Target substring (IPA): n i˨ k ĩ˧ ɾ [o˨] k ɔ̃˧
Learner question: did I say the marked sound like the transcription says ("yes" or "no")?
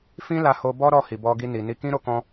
no